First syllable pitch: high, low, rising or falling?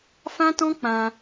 high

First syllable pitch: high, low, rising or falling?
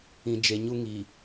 low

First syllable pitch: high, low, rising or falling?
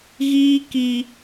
high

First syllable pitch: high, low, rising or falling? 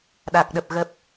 low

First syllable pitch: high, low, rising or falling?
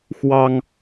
high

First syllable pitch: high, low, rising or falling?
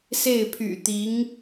falling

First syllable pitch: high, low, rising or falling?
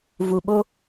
low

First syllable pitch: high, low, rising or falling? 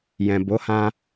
low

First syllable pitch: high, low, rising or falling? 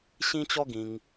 high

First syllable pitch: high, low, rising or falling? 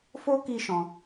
high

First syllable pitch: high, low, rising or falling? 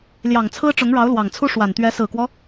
low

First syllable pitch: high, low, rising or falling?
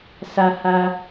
low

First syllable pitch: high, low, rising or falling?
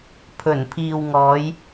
low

